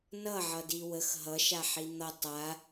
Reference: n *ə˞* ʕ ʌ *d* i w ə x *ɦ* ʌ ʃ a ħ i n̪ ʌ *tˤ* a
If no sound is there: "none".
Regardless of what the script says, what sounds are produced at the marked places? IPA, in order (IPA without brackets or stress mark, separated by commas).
ʌ, d, ɦ, tˤ